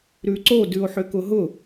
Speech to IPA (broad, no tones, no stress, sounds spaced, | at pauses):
ɾ ʉ ǀ o d ʉ o̯ ħ ʏ k ʊ ɦ ʊ